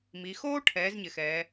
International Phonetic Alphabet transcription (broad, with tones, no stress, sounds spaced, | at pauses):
m i˩˧ x oː˥ ʈʰ ɛː˩˥ z ɲ ɪ˩˧ x ɛː˩˧